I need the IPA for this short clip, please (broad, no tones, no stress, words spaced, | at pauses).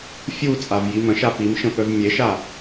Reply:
fʲu t͡sʼavjimə̃ʃa pimʃə̃ pœvmʲeʃa